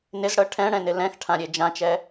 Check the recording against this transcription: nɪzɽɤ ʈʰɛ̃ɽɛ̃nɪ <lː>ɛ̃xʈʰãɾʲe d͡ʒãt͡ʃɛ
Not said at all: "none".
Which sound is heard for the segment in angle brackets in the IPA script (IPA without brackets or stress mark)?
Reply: l